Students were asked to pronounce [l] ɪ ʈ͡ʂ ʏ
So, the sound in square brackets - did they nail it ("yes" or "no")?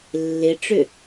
no